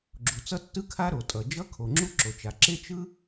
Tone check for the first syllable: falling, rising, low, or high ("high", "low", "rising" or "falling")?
low